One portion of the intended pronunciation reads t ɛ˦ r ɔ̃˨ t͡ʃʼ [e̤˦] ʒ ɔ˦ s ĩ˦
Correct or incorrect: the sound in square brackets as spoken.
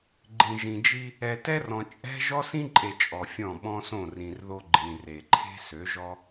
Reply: incorrect: ɛ̤˦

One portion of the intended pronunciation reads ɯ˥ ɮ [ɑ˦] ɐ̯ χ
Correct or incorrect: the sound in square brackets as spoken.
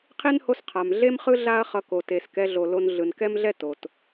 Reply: incorrect: a˦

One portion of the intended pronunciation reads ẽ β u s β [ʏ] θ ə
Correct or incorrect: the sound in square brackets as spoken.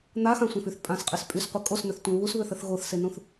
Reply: correct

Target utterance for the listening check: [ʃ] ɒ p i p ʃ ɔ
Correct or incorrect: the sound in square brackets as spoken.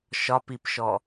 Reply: correct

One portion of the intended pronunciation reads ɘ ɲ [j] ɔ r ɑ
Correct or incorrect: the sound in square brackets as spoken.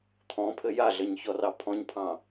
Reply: incorrect: ç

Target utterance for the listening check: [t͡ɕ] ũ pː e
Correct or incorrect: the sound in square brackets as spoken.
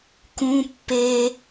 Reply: incorrect: k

